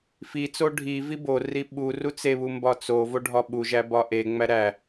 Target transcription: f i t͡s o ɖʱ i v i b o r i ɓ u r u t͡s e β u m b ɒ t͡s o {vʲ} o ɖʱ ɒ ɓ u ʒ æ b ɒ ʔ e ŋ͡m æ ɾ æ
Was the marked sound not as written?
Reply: yes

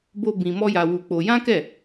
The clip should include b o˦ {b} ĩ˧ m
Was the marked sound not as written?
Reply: no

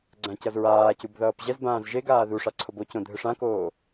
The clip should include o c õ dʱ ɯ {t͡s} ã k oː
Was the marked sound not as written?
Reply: yes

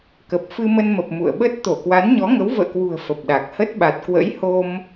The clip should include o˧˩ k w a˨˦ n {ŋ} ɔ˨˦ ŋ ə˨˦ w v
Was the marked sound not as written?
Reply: yes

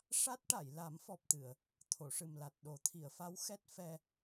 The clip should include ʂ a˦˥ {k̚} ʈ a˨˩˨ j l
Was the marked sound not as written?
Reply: yes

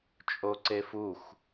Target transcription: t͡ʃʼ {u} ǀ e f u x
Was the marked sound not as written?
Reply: yes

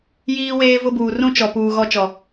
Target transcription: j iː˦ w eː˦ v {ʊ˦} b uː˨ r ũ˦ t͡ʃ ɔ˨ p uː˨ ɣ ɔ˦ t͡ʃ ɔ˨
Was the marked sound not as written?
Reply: no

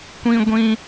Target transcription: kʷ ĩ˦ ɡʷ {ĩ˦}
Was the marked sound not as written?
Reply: no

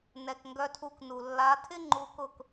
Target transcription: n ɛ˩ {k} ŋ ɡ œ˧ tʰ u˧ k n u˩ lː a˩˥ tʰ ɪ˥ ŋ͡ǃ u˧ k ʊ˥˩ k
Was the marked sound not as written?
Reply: no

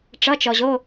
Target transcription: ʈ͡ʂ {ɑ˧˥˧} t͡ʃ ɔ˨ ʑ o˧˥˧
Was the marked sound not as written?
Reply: yes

